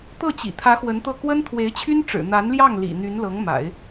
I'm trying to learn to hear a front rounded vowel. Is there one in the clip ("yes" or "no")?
yes